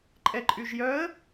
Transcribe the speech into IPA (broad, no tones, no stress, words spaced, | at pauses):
ǃʼɛǃʼyʒjœə̯